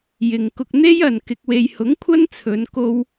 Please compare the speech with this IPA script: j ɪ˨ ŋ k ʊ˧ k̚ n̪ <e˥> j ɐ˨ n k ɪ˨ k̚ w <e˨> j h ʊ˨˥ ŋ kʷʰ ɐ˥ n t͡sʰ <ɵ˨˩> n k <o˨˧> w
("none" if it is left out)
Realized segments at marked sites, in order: e˥, e˨, ɵ˨˧, o˧

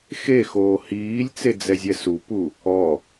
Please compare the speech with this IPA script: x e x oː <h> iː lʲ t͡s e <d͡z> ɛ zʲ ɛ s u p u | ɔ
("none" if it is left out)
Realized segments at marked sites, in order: h, d͡z

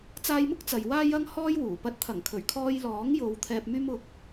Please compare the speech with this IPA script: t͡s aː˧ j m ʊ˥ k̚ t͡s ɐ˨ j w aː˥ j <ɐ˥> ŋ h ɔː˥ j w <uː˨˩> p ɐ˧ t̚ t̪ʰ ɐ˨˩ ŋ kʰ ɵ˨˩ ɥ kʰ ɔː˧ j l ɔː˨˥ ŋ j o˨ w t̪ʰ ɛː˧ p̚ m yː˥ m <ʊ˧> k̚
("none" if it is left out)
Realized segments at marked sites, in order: ɐ˥, uː˨˩, ʊ˧

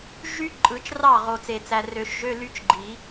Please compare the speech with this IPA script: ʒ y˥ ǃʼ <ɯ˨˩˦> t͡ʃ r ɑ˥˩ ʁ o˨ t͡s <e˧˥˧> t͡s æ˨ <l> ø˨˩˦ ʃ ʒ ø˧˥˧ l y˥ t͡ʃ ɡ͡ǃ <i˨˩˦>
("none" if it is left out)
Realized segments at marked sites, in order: ɯ˨˩˦, e˨, r, i˨˩˦

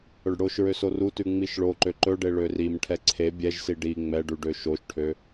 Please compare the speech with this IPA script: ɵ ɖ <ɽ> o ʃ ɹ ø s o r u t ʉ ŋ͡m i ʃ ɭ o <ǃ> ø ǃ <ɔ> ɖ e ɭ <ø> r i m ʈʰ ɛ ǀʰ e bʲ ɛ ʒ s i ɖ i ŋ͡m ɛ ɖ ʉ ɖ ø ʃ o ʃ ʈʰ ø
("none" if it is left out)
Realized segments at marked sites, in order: ɽ, ǃ, ɵ, ø

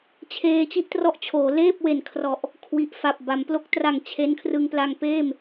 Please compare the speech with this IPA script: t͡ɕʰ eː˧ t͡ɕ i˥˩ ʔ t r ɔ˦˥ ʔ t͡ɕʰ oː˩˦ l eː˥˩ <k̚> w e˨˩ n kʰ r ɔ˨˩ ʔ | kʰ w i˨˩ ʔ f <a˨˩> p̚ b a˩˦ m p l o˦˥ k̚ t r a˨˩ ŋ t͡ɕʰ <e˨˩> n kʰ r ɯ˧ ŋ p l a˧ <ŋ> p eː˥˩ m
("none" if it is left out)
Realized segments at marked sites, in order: p̚, a˨˩, e˦˥, ŋ

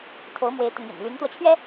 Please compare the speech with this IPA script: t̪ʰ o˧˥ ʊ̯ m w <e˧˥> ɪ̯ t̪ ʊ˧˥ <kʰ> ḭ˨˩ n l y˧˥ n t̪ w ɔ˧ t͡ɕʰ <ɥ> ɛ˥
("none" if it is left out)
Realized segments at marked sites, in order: e˧˥, ŋ, ɥ

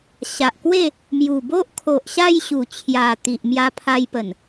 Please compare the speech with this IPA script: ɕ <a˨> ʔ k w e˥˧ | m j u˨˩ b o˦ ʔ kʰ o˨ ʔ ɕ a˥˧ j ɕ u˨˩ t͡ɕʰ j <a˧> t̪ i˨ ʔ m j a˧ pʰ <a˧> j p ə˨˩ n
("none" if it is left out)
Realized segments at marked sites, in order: a˨, a˨˩, a˧

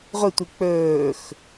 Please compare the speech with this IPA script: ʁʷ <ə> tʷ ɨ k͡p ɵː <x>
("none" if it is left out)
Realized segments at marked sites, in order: ɨ, x

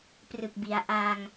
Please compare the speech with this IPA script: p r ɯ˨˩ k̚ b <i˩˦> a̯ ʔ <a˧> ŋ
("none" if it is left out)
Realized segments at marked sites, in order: i˩˦, a˧

